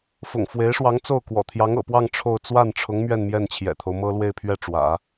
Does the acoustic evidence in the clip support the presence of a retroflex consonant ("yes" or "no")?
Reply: yes